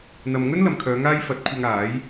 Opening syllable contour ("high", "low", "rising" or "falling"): low